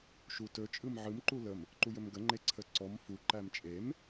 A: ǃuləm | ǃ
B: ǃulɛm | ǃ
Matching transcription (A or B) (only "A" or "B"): A